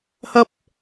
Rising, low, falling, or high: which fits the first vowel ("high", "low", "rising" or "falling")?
high